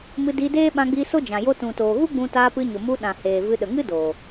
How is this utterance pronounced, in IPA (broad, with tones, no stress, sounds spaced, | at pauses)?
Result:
m ɨ˧ d iː˧ d eː˦ ɓ ã˧ ɡ͡b iː˧ s o˦ d͡ʒ ã˨ j o˧ t ũ˨ t oː˨ ɣ u˦ ɡ͡b ũ˧ t aː˧ p ɨ˧ ɲ o˨ m u˧ ɗ ã˨ h eː˨ v ɨ˧ ɗ ə˨ ŋ ɨ˦ d o˨